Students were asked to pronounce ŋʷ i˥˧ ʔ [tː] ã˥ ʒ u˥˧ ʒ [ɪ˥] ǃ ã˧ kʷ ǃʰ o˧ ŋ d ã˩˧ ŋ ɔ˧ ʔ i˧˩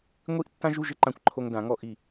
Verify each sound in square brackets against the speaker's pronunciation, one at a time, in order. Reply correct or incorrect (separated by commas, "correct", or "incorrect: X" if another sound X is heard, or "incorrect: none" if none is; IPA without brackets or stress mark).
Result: correct, correct